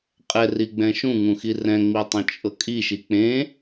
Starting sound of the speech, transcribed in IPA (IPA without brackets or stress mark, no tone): qʼ